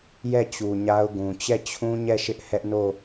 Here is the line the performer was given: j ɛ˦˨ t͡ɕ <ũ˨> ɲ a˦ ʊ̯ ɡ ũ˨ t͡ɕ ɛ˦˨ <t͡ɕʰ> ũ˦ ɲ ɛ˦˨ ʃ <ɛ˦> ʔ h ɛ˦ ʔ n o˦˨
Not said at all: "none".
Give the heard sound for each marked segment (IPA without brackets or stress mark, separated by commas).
u˨, t͡ɕʰ, ɪ˦